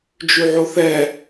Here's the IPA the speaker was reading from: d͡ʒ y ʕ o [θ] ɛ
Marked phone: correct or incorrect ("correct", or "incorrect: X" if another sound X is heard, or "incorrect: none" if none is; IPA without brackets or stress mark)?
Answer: correct